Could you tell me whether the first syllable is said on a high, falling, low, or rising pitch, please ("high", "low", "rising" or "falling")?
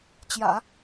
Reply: low